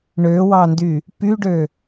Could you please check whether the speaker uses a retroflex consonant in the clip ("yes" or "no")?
yes